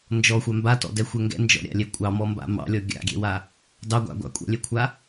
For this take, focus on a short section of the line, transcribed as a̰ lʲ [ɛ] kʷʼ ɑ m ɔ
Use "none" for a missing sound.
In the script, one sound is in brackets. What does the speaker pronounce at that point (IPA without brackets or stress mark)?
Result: ɛ